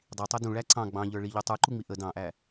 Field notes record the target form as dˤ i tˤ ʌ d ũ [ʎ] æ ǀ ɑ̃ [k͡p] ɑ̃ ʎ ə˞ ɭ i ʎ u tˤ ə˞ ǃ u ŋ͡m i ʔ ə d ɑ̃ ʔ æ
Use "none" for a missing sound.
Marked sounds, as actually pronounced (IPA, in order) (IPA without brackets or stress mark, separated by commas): ɭ, ɡ͡b